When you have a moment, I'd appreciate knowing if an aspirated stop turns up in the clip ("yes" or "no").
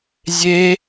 no